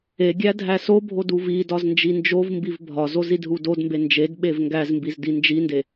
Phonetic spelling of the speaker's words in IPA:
e ɡʲ æ dʱ æ s o bʱ o d u v i d ɒ z n d͡ʒ i n d͡ʒ o v m b i v bʱ ɒ z o z i d ɦ u d o d m b e n d͡ʒ e d ɓ e v ŋ ɡ æ z m b i z d i n d͡ʒ i n d e

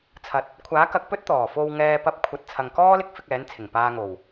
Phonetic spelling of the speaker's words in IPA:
t͡sʰ ɐ˨ t̚ | kʷʰ aː˨˥ k ɐ˨ k̚ p ɵ˥ t̚ t̪ ɔː˨˩ f o˧ w ŋ ɛː˨ p ɐ˨˥ p̚ kʷʰ ɐ˨ t̚ t͡sʰ ɐ˨ ŋ k ɔː˥ l ɪ˥ k̚ f ɪ˧ k̚ ɛː˨˥ n t͡sʰ ɪ˨˩ ŋ p aː˨ ŋ o˨˩ w

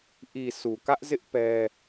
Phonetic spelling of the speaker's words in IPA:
ʔ i˨ s u˨ k ä˦ ʔ z ɪ˦ ʔ p ɛ˦

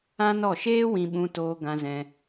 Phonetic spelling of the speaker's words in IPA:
ã˦ n ɔ˦˨ ʃ eː˦ w ĩ˧ ɓ ũ˧ t oː˧ ɡ ã˧ z ɛ̃˧

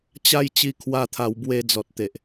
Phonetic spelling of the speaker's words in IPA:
t͡ɕ a˦ j t͡ɕ i˧ kʰ w a˧ t̪ʰ a˨˩ w b w e˧ d͡z ɔ˨ t̚ t̪ e˨ ʔ

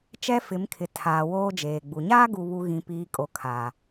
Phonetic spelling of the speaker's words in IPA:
t͡ʃ ɛ˦ f ɪ˨˦ m kʰ ɪ˨ tʰ aː˨ w oː˦ d͡ʒ eː˨ ɡ͡b u˨ ɲ aː˦ ɡ u˨ β u˨ ɣ ĩ˨ p iː˨ kʼ o˨ kʰ a˨

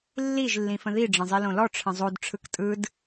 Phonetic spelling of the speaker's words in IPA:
lː i ʒ lː ĩ f ə̃ ð i ɖ͡ʐ ə̃ zˤ i l õ l ɔ ʈ͡ʂʰ ə̃ zˤ o d ʈ͡ʂʰ ɯ k tʼ ɯ d

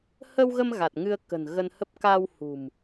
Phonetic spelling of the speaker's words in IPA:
h ə˧ w ɣ ə˧ m ɣ a˨˩ t̚ ŋ ɨ˧ ə̯ k ə̤˨˩ n ɣ ə˧ n h ə˦˥ p̚ k a˧ w h ṳ˨˩ m

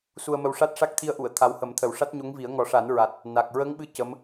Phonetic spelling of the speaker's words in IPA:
s u˧ ə̯ m ə˧ w ʂ a˦˥ t̚ ʂ a˦˥ k̚ t̪ʰ i˧ ə̯ ʔ u˨˩˨ ə̯ t̪ʰ a˧˥ w h ə˨˩˦ m t̪ʰ ə˨˩ w ʂ a˦˥ t̚ ɲ o˧˥ ŋ v i˨˩˦ ə̯ ŋ ɔ˨˩˦ ʂ a˨˩˦ n ɹ a˨˩ t̚ | n a˨˩ k̚ ɹ ə˧˥ ŋ ɓ ɨ˧˥ c ə˧˥ m

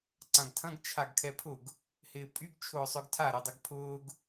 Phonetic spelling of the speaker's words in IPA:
ǀ ã ɡ tʰ ɐ̃ ɡ t͡ʃʰ a ɡ kʰ ɛ pʰ ʊ ɡ | h ɪː pʼ y ɡ t͡ʃʰ ʊː sˤ œ ɡ tʰ a ɾ ʊ dˤ ɐ ɡ pʰ ʊː ɡ

